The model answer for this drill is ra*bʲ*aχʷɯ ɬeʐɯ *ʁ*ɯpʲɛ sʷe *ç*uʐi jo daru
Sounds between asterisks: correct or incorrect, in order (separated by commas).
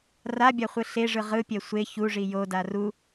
correct, correct, correct